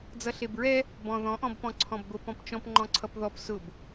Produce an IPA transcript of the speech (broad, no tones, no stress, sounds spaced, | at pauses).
d͡z ʌ ɬ e b ɹ ɛ | b ɔ̃ ð ɔ̃ ʔ ɔ̃ b p ɔ̃ ǀʰ ɔ̃ b ɡʷ ə p ɔ̃ p t͡ʃ ɔ̃ p ŋ͡ǃ ɔ̃ ǀʰ ʌ p ð ɔ p s ʊ b